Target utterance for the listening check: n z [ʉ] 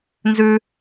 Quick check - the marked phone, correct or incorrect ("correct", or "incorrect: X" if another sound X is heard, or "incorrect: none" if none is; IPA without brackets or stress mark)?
correct